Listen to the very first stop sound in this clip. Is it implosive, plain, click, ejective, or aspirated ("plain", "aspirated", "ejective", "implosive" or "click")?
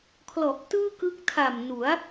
aspirated